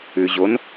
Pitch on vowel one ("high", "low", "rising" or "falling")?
low